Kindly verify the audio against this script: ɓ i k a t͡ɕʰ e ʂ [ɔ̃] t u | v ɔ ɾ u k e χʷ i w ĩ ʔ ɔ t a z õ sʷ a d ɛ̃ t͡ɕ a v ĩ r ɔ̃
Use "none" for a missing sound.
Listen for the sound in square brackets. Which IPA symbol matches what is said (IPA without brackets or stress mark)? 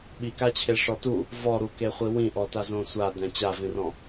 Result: ɔ